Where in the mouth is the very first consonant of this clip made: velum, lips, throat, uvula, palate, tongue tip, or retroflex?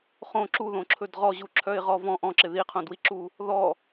uvula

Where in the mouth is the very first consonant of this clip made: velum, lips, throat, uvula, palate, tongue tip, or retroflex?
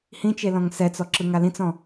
throat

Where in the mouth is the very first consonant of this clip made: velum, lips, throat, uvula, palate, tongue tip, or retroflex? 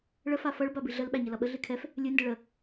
retroflex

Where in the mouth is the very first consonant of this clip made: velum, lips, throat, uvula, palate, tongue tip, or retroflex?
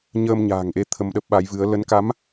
palate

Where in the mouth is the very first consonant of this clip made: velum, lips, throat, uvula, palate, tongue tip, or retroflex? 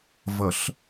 lips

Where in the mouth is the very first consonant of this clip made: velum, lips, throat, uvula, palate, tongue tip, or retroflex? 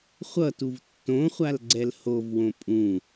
uvula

